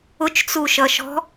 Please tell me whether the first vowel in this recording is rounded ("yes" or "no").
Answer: yes